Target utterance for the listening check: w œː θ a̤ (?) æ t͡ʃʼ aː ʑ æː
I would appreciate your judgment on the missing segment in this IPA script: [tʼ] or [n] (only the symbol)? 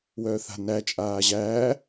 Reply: n